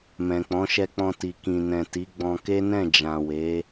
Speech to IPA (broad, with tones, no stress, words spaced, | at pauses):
mɛ̃˨k͡pɔ̃˨˦ʃɛ˧k͡pɔ̃˧ ti˨kĩ˨ nɛ̃˨ti˨˦ɡ͡bɔ̃˧ ke˦nɛ̃˦˨ d͡ʒã˨ we˨˦